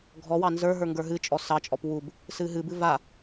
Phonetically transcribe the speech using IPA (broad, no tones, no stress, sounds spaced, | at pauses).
ɡʱ ɔ w ɑ n z ə˞ ɦ ə˞ ŋ ɡ ə˞ ɦ ɨ t͡ʃʼ ɔ s ɑ t͡ʃʼ ɔ p w u b | s ɨ ɦ ɨ b ɨ v a